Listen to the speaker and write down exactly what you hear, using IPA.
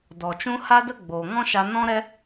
d ɔ˨ t͡ʃ ũ˦ h a˦ d ə˦ ɡ͡b oː˨ ŋ ɔ̃˦ ʃ a˧ n ɔ̃˦ ɾ ɛ˦

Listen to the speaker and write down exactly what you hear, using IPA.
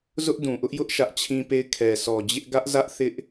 z ʊ˦ ʔ d ũ˨ ʔ ʊ˦ ʔ j ʊ˦ ʔ ʃ ä˦ ʔ t͡ɕʰ ĩ˦ p e˦˨ ɪ̯ kʰ ɛ˨ s ɔ˨ d͡ʑ ɪ˦ ʔ ɡ ä˦ ʔ z ä˦ ʔ θ ɪ˦ ʔ

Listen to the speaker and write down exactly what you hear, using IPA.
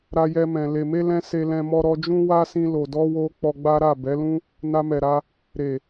ɾ a˧ j ɛ˧ m ɛ̃˨ l e˨ m e˧ l ɛ̃˦ s e˧ l ɛ̃˧ m ɔ˧ ɾ ɔ˧ d͡ʒ ũ˦ w a˦ s ĩ˧ l o˨ d ɔ˧ w o˧ k͡p ɔ˧ ɡ͡b a˦ ɾ a˦˨ b ɛ˨˦ l ũ˦ | n a˧ m ɛ˨ ɾ a˧ | ɾ e˨

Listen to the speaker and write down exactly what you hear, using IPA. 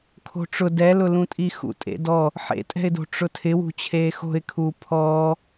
kʰ o̤ ʈ͡ʂ ʊ d ɛ l ʊ l ũ tʼ i x ṵ tʼ ḛ d ɔ | ħ ḛ tʼ ɛ̤ ɪ̯ d o̤ ʈ͡ʂ ʊ tʰ ɪ w ṳ t͡ɕʰ eː x o̤ ɪ̯ kʰ uː pʰ ɔː

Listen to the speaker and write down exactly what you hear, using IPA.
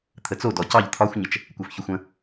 t̪ʰ ə t͡s o d ɔ c ɑ ʎ t̪ʰ ɒ xʷ ɲ ə t͡ʃ | kʷ æ f ç ɵ xʷ ə̃

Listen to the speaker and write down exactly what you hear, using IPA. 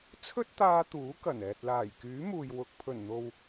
t͡sʰ ɵ˥ t̚ t̪ aː˧ t̪ uː˨˥ k ɐ˨˩ n ɛː˨ t̚ l aː˨˩ j k yː˨˥ m uː˨ j w ʊ˨ k̚ pʰ ɵ˨˩ n n̪ o˨ w

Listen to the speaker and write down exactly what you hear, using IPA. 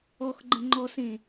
ɔ x ɡ͡ǃ ə̃ ŋ͡ǃ ɔ s ẽ

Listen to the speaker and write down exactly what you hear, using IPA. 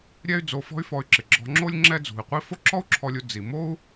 ɾʲ ɛ˥ y̯ d͡z o˧ f ɔ̤˥ y̯ f ɔ˧ y̯ ǁ ɪ˩ ɡ͡ǁ ɔ̤˧ ŋ͡ǁ o˥ lʲ ŋ͡ǁ ɛ˥ d͡z ṳ˩ i̯ qʷ i˥ f o˥ ǁ ɔ˥ u̯ ǁʰ ɔ˧ lʲ u˧ d͡z i˩ m o˥ u̯

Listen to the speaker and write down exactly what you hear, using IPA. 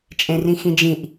t͡ʃʼ ẽ r ĩ x ĩ d͡ʒ ĩ ʔ

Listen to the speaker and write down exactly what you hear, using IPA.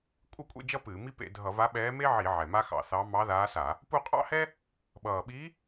kʷʼ ɨ˥˧ kʷʼ ḛ˥˧ d͡ʒ ʌ˥ p ɨː˧˩˧ m i˥ p ḛ˧˩˧ dʱ ʌ˧˩˧ v a˧˥ ɓ ɛː˧˥ m e˥ ʕ i˧˩˧ ʕ ɛ˨˩ m a˥ x ɑ̰˧˩˧ θ ɑ˧˥ m ɑ˧˥ ð aː˧˥ s a˧˩˧ | p u˥˧ qʼ ɑ̰˥˧ h ɛ˥ | ɓ ʌː˨˩ ɓ i˧˥

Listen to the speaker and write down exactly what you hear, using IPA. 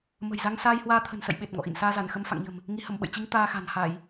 m ə̤˨˩ j z a˧ ŋ s aː˧ j h w aː˧ t̪ʰ ə̤˨˩ n s ə̰˧˨ j ɓ e˨˩ t̚ ŋ ɔ̰˧˨ ʔ ḭ˧˨ n s aː˧ z a˧˩ n x ə˧ m f a̰˧˨ ŋ ɲ ə̤˨˩ m | ŋ i˨˦ h ə˧˩ m ɓ ə̰˧˨ j t͡ɕ i˧ ŋ t̪ aː˧ x a̤˨˩ n h a˧˩˨ j

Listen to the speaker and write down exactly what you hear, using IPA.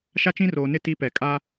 ʃ a˦ t͡ʃ ĩ˦ r oː˨ n ɪ˦˨ t i˦ p ɛ˨ kʼ aː˦

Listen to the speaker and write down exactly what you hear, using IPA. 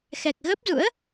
x ɛ˨˩ k̚ ɣ ə˦˥ p̚ z ṵ˧˥ ə̯

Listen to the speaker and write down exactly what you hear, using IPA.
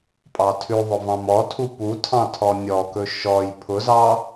pʼ ɑ tʰ ʉ ðˤ ʊ v ɑ̃ m ɔ tʰ u p u tʰ ɑ̃ tʰ ɔ nʲ ɔ k ɵ ʃ ɔ j pʰ ʊ z ɑ

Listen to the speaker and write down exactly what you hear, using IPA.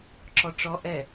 ǁ ɔ ʈ͡ʂ ɔ ʔ ɛ

